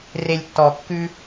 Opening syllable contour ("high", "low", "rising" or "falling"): low